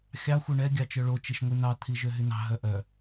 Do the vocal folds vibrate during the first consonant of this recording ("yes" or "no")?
no